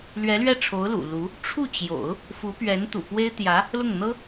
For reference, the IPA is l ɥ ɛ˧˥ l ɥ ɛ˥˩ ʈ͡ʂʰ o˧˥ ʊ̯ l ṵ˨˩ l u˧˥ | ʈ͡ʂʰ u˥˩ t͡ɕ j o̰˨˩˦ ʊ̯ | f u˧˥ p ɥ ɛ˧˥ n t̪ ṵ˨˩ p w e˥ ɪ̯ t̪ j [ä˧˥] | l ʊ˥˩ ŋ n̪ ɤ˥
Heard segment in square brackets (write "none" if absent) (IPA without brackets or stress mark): ä˧˥